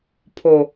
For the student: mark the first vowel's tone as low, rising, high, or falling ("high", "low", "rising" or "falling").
low